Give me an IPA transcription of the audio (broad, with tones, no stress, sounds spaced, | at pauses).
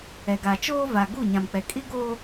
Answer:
ɛ˨ ɡ a˨ t͡ʃ oː˦ v a˨ ɡ u˦˨ ɲ ã˨ m k͡p ɛ˨ kʼ i˦ ɡ oː˦